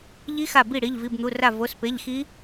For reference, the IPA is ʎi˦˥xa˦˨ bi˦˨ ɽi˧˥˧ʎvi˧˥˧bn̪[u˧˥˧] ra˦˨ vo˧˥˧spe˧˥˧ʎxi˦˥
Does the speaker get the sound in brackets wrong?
no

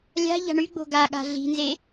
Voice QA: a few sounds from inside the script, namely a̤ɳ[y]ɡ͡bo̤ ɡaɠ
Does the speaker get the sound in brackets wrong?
no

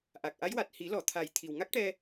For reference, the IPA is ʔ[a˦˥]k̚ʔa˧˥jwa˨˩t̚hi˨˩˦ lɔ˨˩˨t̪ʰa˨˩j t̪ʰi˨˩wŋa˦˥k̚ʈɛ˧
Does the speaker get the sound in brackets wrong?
yes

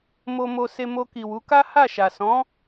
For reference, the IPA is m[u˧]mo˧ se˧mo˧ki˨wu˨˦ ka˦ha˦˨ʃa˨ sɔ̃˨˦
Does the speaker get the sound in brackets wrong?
yes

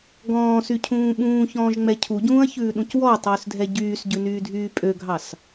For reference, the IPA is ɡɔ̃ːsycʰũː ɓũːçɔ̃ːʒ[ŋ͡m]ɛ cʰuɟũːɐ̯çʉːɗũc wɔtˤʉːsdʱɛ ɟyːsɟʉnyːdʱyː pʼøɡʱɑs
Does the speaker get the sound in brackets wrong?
no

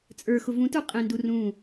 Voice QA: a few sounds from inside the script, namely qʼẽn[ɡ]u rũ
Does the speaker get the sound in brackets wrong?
yes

